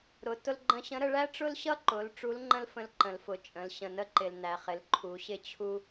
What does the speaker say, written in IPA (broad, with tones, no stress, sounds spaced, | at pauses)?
ɾ ʊ˩˧ t ʊ˧ l ɡ͡ǃ ə̃˧ ɕ ə̃˧˥ ɾ ə˧ ɭ æ˥ ʈ͡ʂ ʊ˥ l ɕ ʌ˥ ǃ ʊ˩˧ l ʈ͡ʂ u˧˥ l ŋ͡ǃ ə̃˥ l f ə̃˧˥ l ǃ ə̃˩ l f ʊ˩ t͡ʃʼ ə̃˩˧ l ɕ ə̃˩ n ə˥ ǃ ɪ˩ l n æ˩ χ ɪ˩˧ l ǃʰ u˩˧ ɕ ɪ˥ t͡ɕʰ u˥